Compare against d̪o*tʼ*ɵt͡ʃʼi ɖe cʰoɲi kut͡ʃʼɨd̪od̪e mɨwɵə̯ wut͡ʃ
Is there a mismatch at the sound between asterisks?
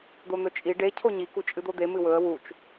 yes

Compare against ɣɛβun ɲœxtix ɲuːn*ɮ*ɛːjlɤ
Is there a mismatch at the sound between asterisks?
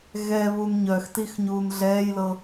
no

